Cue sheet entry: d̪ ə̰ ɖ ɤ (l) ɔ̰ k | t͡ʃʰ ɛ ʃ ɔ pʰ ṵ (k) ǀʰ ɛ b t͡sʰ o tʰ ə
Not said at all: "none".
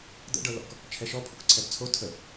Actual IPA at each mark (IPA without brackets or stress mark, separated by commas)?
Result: l, k